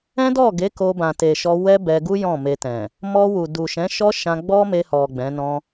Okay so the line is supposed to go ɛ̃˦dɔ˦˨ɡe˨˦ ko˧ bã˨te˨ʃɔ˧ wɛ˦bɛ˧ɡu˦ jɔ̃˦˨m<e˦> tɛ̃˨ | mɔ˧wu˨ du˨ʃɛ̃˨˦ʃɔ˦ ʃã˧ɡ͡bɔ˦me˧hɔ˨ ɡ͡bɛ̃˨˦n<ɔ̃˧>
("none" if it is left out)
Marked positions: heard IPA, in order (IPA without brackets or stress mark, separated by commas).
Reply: e˧, ɔ̃˦